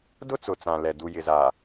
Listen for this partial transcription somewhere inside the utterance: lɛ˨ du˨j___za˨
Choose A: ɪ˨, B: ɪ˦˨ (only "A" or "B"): A